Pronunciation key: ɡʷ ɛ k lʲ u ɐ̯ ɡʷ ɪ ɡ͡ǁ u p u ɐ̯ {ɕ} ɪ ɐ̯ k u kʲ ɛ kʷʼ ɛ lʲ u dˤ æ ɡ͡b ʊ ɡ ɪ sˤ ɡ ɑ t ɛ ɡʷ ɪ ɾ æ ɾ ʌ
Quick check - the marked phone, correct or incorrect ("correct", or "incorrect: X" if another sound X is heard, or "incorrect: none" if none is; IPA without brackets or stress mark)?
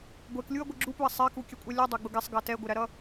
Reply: incorrect: sˤ